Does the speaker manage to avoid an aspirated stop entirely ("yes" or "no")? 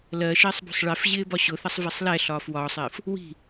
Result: yes